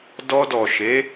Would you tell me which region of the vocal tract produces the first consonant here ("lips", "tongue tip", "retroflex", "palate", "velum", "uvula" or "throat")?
tongue tip